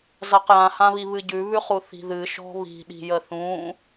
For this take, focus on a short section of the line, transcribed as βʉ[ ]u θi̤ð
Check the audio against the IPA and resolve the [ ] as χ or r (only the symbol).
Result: χ